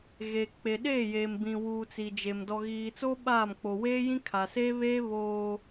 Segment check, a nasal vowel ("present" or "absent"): present